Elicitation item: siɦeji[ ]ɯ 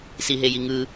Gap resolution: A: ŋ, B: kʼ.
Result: A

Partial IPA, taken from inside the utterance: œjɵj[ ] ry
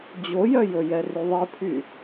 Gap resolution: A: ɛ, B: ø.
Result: A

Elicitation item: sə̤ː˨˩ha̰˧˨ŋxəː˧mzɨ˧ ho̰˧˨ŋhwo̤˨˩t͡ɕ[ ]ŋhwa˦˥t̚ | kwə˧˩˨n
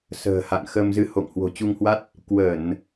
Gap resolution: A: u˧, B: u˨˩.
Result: A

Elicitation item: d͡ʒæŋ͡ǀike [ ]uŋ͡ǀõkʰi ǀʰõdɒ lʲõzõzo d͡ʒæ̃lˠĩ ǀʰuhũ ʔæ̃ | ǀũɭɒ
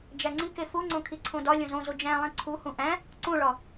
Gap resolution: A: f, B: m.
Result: A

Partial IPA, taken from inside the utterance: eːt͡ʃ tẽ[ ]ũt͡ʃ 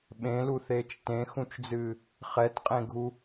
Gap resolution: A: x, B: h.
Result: A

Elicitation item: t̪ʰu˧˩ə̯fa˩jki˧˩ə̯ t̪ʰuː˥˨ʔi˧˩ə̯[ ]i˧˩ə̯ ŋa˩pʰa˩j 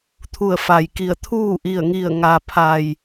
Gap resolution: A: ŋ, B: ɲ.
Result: A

